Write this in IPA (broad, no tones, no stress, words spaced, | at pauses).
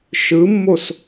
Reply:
ʃɯmːos